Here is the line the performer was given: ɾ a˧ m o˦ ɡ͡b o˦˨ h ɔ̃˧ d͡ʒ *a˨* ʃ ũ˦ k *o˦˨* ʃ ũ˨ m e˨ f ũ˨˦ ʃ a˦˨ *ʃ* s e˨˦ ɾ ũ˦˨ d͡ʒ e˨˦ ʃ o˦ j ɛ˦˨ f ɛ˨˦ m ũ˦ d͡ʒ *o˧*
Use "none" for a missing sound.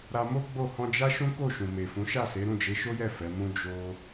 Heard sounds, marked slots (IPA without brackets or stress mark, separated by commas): a˦, o˦˨, none, o˧